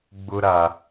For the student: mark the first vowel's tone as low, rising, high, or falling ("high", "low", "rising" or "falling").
high